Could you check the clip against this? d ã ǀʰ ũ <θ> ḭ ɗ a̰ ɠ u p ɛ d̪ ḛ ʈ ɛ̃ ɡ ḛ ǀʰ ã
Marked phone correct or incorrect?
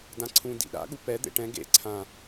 incorrect